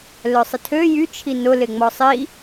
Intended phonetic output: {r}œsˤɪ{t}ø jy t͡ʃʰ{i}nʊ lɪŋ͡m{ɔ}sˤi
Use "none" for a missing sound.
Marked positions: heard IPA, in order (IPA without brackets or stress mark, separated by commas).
l, tʰ, i, ɔ